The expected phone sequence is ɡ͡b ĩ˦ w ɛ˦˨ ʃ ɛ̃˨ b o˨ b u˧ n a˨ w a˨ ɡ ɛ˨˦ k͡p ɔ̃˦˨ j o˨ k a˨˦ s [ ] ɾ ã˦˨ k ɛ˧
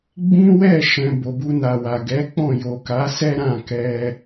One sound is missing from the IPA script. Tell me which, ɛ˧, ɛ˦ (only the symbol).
ɛ˦